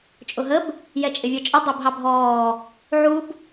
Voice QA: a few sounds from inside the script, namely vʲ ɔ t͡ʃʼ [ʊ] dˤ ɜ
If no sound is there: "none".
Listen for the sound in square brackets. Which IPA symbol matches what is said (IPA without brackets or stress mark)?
ə